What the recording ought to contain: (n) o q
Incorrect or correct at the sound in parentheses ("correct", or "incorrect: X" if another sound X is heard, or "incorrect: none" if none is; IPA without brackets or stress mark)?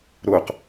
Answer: incorrect: ɾ